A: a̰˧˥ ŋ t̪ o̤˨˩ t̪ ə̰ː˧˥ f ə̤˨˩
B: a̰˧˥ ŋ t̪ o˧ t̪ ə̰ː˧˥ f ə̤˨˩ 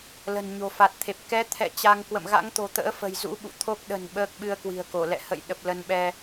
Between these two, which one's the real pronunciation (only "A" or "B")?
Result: A